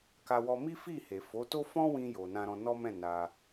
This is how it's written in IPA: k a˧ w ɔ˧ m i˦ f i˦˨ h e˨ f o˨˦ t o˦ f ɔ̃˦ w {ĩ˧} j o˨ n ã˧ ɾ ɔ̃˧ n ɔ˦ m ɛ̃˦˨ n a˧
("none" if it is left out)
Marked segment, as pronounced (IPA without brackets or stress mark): ĩ˧